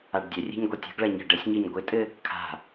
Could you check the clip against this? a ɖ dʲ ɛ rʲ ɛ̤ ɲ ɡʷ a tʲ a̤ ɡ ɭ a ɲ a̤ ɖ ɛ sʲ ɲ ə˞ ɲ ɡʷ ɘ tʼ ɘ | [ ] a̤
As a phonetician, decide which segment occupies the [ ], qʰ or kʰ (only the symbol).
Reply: kʰ